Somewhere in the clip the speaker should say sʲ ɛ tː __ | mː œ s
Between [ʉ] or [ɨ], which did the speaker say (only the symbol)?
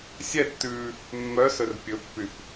ʉ